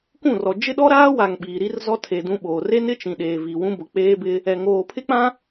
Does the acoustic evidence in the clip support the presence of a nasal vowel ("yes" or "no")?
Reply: yes